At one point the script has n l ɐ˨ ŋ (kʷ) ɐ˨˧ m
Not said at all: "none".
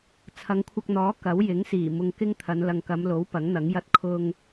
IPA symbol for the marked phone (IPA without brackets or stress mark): k